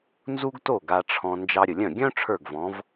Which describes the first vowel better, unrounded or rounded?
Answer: rounded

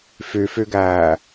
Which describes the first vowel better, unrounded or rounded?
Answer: rounded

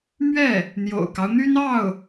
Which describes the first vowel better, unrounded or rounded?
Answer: unrounded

